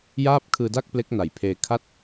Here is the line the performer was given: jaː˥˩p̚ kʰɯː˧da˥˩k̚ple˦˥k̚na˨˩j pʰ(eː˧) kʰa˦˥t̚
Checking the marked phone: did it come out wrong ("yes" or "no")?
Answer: no